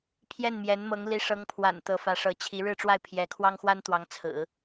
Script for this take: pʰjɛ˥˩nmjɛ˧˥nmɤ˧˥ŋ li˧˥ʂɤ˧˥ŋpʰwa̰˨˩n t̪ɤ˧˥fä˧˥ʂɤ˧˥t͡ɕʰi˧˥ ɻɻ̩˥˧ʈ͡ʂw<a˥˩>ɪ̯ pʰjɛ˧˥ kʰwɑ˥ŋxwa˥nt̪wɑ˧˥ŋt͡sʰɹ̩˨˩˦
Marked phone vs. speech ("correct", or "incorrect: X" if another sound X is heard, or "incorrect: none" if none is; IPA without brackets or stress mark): correct